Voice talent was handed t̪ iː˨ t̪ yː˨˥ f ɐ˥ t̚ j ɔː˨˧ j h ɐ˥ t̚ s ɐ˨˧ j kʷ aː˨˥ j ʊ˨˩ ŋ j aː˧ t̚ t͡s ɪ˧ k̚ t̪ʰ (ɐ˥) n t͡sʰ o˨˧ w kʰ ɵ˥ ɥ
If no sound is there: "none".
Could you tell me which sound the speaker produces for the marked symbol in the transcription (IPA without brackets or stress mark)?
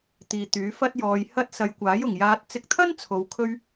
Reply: ɐ˥